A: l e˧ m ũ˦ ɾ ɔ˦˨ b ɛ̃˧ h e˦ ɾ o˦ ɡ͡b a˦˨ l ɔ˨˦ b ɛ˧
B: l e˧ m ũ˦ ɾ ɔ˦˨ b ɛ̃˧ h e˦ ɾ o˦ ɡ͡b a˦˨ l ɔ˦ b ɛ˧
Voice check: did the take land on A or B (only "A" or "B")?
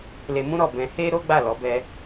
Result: A